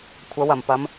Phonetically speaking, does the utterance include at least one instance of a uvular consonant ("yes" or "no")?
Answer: no